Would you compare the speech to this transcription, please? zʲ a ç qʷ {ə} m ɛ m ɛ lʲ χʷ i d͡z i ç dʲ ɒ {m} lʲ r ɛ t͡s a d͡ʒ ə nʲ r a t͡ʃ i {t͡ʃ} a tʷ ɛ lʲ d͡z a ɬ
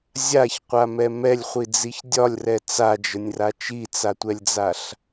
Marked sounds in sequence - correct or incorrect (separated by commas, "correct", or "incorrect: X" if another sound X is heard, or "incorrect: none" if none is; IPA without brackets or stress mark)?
incorrect: a, incorrect: none, incorrect: t͡s